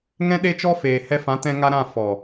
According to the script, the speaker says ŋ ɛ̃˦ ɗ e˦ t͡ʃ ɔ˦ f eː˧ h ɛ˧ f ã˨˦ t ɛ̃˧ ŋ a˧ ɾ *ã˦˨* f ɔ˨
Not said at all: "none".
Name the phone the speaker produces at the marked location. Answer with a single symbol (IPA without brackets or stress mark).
ã˦˨